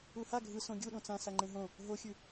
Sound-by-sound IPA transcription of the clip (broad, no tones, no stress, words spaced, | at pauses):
uha ɡʱɯ sõɡʲuɗõ t͡sã saŋ͡ǃẽɦõ | ɦoxʲʉ